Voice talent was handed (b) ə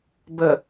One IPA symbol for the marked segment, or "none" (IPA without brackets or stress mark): b